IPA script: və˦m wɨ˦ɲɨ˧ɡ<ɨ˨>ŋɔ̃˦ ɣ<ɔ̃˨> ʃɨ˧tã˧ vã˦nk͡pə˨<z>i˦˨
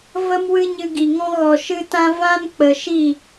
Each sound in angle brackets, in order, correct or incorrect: incorrect, incorrect, incorrect

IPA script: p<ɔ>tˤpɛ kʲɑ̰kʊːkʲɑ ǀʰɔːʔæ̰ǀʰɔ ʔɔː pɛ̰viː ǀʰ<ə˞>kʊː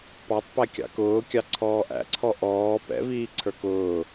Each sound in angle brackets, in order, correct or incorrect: incorrect, correct

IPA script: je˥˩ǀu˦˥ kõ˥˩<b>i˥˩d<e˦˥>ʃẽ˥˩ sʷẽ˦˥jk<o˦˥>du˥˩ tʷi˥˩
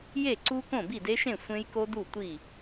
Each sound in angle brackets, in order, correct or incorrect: correct, correct, correct

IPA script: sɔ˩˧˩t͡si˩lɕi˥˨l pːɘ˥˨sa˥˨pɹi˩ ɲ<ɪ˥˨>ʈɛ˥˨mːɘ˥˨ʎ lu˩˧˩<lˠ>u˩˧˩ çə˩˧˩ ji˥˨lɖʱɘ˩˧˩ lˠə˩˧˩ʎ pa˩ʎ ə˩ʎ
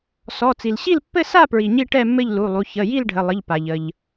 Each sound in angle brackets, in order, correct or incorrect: incorrect, correct

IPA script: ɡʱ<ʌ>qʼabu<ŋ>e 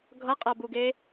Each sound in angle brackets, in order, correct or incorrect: correct, incorrect

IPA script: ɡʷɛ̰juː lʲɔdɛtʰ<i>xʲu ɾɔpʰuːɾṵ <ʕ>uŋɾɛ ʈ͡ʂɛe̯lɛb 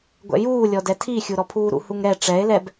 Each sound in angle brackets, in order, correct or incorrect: correct, incorrect

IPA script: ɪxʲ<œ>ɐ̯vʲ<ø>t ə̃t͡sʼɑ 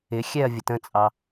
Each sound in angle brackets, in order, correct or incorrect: incorrect, incorrect

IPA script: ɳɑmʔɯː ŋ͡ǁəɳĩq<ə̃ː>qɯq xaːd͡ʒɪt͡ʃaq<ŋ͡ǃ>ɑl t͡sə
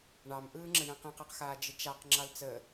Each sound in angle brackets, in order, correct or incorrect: incorrect, incorrect

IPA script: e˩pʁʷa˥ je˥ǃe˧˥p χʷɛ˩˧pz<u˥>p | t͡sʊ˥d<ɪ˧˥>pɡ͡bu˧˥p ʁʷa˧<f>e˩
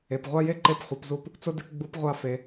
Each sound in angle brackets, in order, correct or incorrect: incorrect, correct, correct

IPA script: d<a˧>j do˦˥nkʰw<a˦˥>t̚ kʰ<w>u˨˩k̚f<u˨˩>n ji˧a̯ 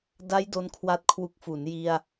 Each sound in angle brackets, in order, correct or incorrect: incorrect, correct, correct, incorrect

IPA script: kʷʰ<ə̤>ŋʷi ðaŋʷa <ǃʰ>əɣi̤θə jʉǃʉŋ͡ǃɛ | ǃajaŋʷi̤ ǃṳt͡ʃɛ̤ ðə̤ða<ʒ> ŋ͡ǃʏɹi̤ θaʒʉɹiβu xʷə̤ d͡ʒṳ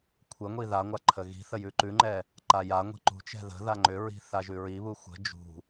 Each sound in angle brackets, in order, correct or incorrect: incorrect, correct, incorrect

